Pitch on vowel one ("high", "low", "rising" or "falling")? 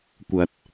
low